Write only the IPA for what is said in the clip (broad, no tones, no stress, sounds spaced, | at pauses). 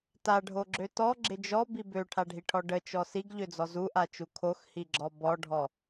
t a ɖʱ o ɡ͡ǁ ø t ɔ ɡ͡ǁ ɪ d͡ʒ ɔ b i b ø ʈʰ a ɖʱ i ʈʰ ɔ ɖ ə t͡ʃ ɔ s i ɡ ʎ ø d͡z ɔ z u ʔ a t͡ʃ u kʰ o x h i ɡ͡ǁ ɔ b ɔ ɖʱ ɔ